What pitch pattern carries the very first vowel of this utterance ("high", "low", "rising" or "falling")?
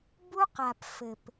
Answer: high